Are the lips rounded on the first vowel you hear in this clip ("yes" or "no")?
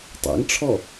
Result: no